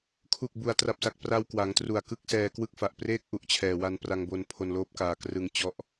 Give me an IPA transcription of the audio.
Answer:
kʰ u˨˩ k̚ b u˩˦ a̯ t r a˨˩ p̚ s a˨˩ k̚ p r a˧ w k w a˩˦ ŋ t r u˨˩ a̯ k ɯ˥˩ k̚ s ɛː˧ k w ɯ˥˩ k̚ f a˨˩ ʔ p r eː˥˩ k̚ ʔ u˨˩ ʔ t͡ɕʰ ɛː˨˩ w a˧ n p r a˧ ŋ b o˧ n pʰ o˧ n l oː˦˥ p̚ k aː˧ k r ɯ˧ ŋ t͡ɕ ɔ˦˥ ʔ

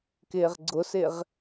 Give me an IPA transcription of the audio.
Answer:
k ɪː ʁ ɡ͡ǀ ʊ s ɪ ʁ

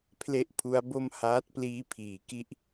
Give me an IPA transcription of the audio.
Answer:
pʰ l e˥˩ ʔ pʰ u˦˥ a̯ b o˥˩ m h aː˦˥ t̚ p l iː˦˥ pʰ iː˩˦ k i˥˩ ʔ

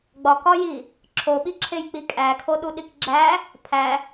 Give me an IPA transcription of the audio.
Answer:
ɡ͡b ɒ k ɒ j i | ǁʰ o ɓ i ǁʰ e j k͡p i kʼ æ kʰ o ɗ u ɗ i k ɡ͡ǁ æ | pʰ æ

